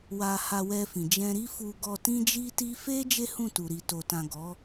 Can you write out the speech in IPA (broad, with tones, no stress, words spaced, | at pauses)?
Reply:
wa˧ha˧wɛ˧fĩ˨ d͡ʒɛ̃˧ɾi˦fu˧ɡɔ˧ tĩ˦d͡ʒi˦ti˦ fe˦ d͡ʒe˦hũ˦˨tu˨ ɾi˨to˨tã˨ ɡɔ˨˦